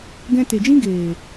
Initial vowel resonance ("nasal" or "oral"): nasal